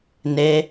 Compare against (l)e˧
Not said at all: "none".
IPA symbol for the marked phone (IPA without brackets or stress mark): n